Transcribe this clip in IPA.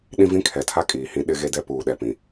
ɗ ĩ˦ v ĩ˦ kʰ ɛ˨ tʰ a˦ kʼ iː˨ h ĩ˦ ɗ ɪ˦ ɣ e˦ d ɛ˦ p uː˨ ɗ ɛ˨ p ĩ˨

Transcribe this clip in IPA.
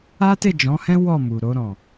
a˦ t e˦˨ d͡ʒ ɔ̃˨˦ h ɛ̃˦ w ɔ˦˨ m u˨ ɾ o˧ ɾ ɔ̃˨

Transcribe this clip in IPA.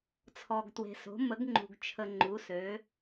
t͡sʰ ɔ˩ ɡ t w e̤˩ s o̤˩˧ m ə˩˧ ɡ ŋ͡ǃ ṳ˩ ɡ t͡ʃʰ ə˩ ŋ͡ǃ u˩˧ s ø˩˧

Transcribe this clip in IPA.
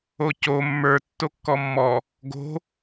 o c o mː ə˞ tː o kː ɔ mː ɔ | ɡ o̤

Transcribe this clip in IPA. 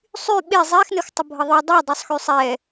sˤ y ɓ e zˤ e x n ə x tˤ ə bʱ ə ðˤ y dˤ u dˤ u sˤ x y sˤ ɛ

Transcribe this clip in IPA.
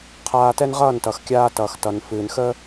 qʰ aː˧ t ɛ˥ n ʁ ʌː˥˩ n t ʌ˩ x kʲ aː˧ t ʌː˩ x t ʌ˩ n f ɨː˩ n x əː˥

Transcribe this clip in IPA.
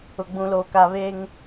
ʊ˨ ɡ͡b ũ˨ l oː˨ k a˨ β eː˦ ŋ

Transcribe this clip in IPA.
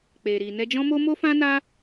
k͡p e˨ ɾ i˨ n ɛ˧ d͡ʒ ɔ̃˦ m o˦ m o˦ f ã˦ n a˦

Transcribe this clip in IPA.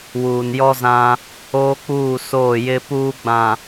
w uː˨ n j ɔ˦ z ã˦ | oː˦ k͡p uː˦˨ s oː˦˨ j ɪ˦ p uː˦ ɡ͡b ã˨

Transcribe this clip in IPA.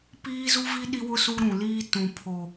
p iː˦ z u˦ v i˦ ɗ i˦ w ʊ˦ s u˦ ɾ ũ˨ l iː˦ t ũ˨ pʰ o˨

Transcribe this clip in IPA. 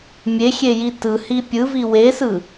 mʲ e xʲ e j i t ɯ h i pʲ ɯ v i w e s ɯ

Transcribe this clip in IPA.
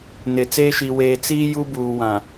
n ɪ˨ t͡s eː˦ ʃ i˨ w eː˨ t͡s iː˦ j u˦ b uː˨ w ã˨

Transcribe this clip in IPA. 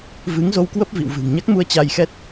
v ɨ˨˦ ŋ z o˧ w k w ə˦˥ p̚ v ḭ˧˨ w v ɨ̤˨˩ ŋ ɲ a˦˥ k̚ m u˧ ə̯ t͡ɕ a˧ j x ɛ˦˥ t̚

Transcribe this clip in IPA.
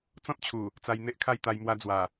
t͡s ɔ̃˦ t̚ t͡ɕʰ u˨˩ | t͡s a˧ j n̪ e˦ ʔ kʰ a˥˧ j t̪ a˧ j m w a˧ d͡z w a˨˩

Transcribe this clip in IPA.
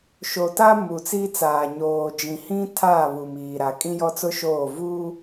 ʃ o˨ t a˦ m u˨ t͡s i˦ t͡s aː˨ ɲ oː˨ d͡ʒ ĩ˨ h ĩ˦ tʰ aː˦˨ β u˨ m iː˨ ɾ a˨ kʼ ĩ˦ j ɔ˦ t͡s ʊ˦ ʃ oː˦˨ v uː˦

